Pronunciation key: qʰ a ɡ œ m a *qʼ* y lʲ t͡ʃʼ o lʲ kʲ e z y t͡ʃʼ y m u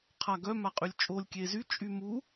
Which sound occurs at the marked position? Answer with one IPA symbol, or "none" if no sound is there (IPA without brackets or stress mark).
qʼ